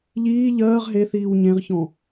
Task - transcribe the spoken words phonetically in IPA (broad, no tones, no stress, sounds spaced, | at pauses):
ʎ iː ʎ ɜː ʁ ɦ e θ iː w ɲ ẽ ʁ ç ɔ̃